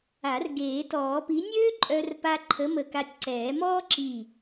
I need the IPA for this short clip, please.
a˨˩˦ r ɡ eː˨˩˦ t ɔː˨˩˦ p i˨˥ nʲ øː˥ ǃʼ œ˧ r p a˧ ǃʰ ə˨˥ m ə˧˩ k a˧ tʲ ǀ ɛː˨˩˦ m ɔː˥ ǁ i˧˩

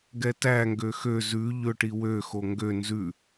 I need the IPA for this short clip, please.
ɡ ɛ t æ ŋ ɡ ø x ø z ʉ ʎ ɵ ʈ i w ø x o ŋ ɡ ø n z ʉ

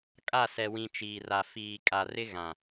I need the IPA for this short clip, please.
kʼ a˦˨ s ɛ˨ w ĩ˨ t͡ʃ iː˨ r a˨ f iː˨ kʼ a˨ r ɪ˦ ɣ ã˨

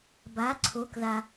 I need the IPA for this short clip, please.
b a˩˧ ǀʰ o˩˧ k ð a˩

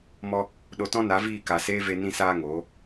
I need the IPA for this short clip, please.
m ɔ˧ | ɗ o˧ t ɔ̃˦ n a˨˦ v iː˦˨ k a˨ s eː˦ v e˧ n ĩ˧ s aː˧ ŋ oː˨˦

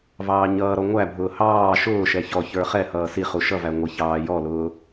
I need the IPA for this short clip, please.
v ɑː ɲ ʌː ɾ ɔ ŋʷ æ bʱ ʊː h ɑː ʃ ʊː ʃ ɛ ç ɔ ç ə˞ χ ɛ h ʌː s i χ u ʃ ʌ v æ ŋʷ ɪ ç ɑː j ɔ l ʊː

